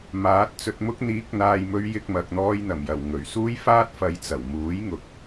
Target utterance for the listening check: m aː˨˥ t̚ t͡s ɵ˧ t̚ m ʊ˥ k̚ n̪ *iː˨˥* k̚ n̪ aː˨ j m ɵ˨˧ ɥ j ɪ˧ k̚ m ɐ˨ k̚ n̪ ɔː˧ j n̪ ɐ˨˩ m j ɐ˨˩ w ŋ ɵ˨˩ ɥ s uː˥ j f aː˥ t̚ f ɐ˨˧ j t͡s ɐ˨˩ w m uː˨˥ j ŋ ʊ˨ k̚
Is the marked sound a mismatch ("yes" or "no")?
no